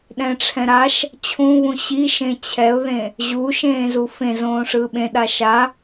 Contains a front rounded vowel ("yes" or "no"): no